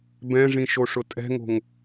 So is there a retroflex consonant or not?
yes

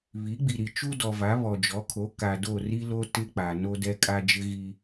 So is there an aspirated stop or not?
yes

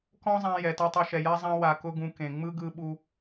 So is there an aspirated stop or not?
no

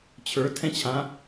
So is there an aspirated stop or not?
yes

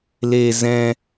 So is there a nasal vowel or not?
yes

